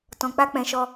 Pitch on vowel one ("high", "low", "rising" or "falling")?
low